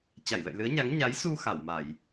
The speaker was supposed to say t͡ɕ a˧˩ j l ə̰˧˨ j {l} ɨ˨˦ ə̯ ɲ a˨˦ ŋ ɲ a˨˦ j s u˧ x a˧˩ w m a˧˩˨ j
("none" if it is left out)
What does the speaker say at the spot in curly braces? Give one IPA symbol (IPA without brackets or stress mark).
l